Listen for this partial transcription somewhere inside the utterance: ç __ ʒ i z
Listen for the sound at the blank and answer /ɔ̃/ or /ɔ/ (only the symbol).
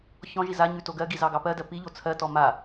ɔ̃